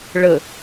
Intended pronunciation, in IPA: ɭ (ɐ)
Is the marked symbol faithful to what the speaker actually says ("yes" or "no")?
no